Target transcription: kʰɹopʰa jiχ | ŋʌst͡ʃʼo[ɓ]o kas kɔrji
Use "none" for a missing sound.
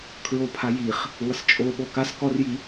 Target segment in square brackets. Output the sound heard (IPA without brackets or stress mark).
ɓ